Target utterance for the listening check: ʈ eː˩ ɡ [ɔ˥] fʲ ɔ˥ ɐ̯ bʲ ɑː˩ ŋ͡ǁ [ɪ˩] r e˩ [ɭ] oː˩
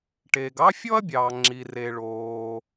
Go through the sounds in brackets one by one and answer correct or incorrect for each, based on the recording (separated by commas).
incorrect, incorrect, correct